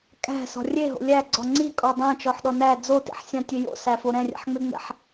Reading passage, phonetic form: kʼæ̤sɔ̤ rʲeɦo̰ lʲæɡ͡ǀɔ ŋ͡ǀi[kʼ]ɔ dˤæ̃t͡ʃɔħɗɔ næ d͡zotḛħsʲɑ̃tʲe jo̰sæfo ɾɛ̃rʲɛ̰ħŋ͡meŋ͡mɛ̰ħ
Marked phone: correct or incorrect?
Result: correct